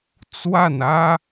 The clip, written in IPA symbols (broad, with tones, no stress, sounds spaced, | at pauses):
t͡s w a˥˩ n ä˥